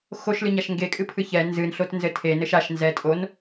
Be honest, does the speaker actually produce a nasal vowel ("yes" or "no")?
no